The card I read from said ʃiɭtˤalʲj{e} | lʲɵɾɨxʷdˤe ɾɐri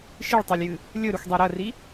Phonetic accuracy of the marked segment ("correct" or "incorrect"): incorrect